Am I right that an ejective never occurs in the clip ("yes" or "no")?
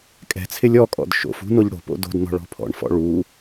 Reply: no